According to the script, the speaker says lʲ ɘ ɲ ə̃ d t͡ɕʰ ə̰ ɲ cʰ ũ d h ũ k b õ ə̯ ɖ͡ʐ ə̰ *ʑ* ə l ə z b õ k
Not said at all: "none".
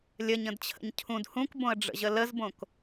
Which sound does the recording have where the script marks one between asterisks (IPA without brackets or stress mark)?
ʑ